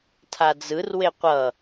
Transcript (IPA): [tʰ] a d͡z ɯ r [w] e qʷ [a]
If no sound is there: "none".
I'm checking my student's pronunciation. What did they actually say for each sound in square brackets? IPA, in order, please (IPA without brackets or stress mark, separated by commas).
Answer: tʰ, w, ʌ